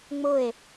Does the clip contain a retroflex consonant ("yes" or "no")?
no